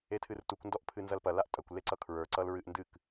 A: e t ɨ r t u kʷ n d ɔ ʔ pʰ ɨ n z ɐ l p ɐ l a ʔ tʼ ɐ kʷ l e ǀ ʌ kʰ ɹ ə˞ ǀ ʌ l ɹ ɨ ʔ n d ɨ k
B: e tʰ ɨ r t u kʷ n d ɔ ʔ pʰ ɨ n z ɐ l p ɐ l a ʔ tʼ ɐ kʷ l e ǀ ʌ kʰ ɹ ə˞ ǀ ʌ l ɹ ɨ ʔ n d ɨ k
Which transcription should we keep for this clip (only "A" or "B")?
B